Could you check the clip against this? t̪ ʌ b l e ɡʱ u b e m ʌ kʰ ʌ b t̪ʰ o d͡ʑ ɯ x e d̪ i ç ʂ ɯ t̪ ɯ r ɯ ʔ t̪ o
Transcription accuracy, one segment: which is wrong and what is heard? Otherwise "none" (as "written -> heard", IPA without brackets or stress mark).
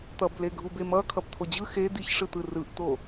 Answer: none